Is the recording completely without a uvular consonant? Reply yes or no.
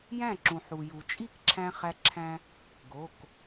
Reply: no